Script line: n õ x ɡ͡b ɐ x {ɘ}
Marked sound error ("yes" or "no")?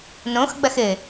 no